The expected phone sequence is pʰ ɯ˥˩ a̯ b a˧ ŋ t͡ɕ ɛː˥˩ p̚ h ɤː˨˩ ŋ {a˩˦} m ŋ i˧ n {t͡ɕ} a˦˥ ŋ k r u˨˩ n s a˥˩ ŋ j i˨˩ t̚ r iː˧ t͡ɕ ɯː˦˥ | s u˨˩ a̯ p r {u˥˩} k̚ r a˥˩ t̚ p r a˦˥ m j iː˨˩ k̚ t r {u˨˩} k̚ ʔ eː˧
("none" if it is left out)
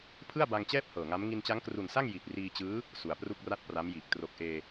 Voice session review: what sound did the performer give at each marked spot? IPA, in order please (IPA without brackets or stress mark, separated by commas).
a˦˥, t͡ɕ, u˥˩, o˨˩